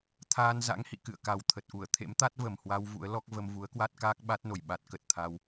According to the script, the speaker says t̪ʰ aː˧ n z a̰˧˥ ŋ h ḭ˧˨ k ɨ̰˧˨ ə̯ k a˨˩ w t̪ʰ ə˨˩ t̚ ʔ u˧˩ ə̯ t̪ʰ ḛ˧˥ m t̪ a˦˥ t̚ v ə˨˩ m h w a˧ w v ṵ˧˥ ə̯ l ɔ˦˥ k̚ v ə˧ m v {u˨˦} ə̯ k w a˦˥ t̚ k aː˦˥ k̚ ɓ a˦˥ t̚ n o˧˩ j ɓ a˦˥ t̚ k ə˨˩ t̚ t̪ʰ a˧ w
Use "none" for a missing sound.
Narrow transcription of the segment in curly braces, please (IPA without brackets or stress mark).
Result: u˨˦